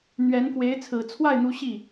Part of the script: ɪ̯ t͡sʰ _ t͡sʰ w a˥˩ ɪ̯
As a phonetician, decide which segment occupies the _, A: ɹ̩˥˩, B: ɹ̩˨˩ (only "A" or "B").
B